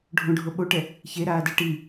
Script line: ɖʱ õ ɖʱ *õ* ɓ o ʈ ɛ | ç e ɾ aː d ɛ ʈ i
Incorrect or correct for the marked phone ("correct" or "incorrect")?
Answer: incorrect